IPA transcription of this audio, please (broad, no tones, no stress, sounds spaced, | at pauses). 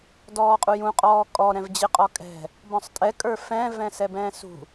d ɔː qʼ u j ũ qʼ ɔː kʼ ɔ ɾ ɛ̃ v d͡ʑ ɪ qʼ ɔ kʼ ɛ̤ | b ɔ̃ sˤ tʼ ɛ kʼ ə˞ f ɛ̃ v ɛ̃ s ɛ b ɛ̃ː s ṳ